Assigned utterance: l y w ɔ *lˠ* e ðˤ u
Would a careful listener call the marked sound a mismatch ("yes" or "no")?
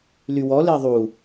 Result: yes